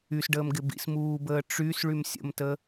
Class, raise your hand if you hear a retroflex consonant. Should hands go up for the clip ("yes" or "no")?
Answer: yes